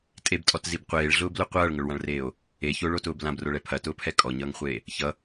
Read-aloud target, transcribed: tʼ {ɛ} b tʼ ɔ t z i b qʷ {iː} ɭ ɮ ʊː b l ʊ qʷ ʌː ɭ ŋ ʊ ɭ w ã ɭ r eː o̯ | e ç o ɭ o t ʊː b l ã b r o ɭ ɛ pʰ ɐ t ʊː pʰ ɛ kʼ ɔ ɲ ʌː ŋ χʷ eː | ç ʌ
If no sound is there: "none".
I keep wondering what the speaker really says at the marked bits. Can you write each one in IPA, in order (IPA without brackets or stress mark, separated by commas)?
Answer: e, eː